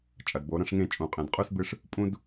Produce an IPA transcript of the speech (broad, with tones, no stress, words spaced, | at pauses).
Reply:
t͡ʃʼɐ˨dbo˨˦ ɾɐ̃˦ʂŋẽ˦˨t͡ʃʼũ˨qʼẽ˨d qʼʉ˦sbɨ˦ʂ | pʼũ˦d